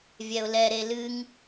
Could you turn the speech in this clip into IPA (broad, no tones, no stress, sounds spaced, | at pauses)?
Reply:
vʲ ɛ ʊ̯ l ɛ ɾ e l ɨ ŋ